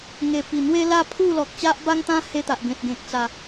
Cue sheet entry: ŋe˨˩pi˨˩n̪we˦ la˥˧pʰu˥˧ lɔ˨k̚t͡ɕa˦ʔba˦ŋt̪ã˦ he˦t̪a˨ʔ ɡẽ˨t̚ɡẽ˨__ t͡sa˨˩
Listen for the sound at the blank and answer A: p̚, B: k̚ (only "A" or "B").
B